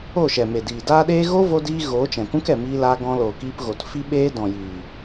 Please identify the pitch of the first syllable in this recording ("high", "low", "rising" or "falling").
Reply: falling